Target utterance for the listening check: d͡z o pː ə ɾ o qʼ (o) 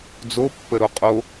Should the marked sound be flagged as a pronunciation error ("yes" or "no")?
no